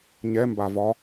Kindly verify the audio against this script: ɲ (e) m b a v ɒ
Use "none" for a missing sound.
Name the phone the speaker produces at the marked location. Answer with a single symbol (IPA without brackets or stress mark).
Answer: ɛ